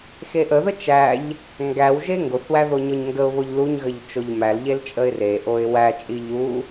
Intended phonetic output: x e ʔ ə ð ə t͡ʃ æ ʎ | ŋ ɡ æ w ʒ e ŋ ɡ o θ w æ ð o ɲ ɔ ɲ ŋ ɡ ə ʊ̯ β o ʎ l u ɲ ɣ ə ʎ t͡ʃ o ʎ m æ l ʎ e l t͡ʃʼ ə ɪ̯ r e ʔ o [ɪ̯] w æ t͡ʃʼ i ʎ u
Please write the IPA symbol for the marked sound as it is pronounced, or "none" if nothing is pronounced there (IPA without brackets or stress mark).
ɪ̯